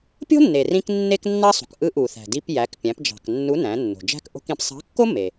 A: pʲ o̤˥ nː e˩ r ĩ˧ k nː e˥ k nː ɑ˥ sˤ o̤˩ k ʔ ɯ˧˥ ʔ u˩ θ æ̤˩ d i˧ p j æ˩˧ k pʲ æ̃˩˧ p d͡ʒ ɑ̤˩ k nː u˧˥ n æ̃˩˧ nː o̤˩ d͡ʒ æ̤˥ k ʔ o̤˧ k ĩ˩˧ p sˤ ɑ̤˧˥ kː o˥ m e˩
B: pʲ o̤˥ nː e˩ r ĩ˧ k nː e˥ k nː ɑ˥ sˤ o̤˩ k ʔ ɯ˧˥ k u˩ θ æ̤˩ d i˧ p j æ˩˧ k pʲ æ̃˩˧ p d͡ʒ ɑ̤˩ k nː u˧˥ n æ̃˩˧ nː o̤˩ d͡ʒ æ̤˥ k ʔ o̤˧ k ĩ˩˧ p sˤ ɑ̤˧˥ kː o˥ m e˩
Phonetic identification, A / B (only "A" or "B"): A